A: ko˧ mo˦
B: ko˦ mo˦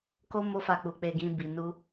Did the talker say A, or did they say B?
B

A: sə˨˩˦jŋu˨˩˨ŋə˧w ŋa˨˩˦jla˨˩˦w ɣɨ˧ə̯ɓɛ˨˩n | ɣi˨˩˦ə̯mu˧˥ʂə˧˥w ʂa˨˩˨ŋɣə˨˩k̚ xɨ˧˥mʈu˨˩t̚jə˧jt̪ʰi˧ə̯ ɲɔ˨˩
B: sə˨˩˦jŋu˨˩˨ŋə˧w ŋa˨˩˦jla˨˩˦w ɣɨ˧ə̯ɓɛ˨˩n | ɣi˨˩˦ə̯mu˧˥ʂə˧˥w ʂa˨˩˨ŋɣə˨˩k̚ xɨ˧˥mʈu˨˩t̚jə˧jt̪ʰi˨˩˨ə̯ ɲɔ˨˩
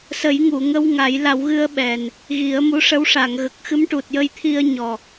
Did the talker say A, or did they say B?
A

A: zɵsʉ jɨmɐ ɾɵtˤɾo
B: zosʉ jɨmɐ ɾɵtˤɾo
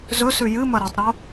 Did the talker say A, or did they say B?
A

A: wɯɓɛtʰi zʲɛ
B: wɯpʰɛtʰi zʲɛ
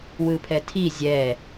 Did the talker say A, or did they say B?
B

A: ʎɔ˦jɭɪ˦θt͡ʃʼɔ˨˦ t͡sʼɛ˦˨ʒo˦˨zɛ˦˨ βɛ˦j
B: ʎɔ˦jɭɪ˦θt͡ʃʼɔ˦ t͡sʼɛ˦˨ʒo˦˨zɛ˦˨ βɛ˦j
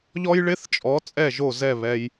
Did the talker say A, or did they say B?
A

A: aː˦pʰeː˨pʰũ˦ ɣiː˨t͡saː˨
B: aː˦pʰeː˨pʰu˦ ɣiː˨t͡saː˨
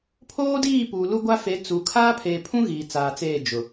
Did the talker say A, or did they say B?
A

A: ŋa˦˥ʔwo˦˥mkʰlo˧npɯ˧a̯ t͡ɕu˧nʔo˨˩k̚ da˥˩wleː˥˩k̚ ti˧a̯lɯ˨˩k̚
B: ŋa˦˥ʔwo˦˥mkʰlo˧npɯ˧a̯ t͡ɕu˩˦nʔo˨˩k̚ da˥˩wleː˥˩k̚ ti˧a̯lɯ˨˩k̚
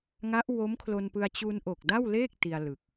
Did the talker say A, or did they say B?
A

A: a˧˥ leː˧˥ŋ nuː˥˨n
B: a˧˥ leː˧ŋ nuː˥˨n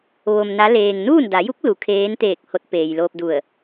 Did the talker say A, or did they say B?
B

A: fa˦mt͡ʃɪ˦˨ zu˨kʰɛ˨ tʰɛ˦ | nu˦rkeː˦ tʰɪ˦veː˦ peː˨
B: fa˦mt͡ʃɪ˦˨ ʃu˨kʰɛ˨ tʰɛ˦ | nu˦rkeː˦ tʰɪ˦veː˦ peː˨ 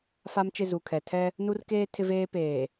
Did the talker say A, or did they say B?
A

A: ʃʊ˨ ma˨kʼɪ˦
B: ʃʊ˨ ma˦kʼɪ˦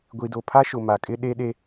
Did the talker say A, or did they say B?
A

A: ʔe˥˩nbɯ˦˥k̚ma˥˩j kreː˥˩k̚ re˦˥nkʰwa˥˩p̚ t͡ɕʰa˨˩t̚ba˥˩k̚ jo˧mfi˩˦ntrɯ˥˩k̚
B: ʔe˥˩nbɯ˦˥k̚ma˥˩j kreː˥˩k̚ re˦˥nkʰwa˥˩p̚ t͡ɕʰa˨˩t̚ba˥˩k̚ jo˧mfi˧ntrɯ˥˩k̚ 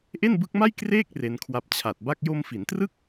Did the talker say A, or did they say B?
A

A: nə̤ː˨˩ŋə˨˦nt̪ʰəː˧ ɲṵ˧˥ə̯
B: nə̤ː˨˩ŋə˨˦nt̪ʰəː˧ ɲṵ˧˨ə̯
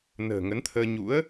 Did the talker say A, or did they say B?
A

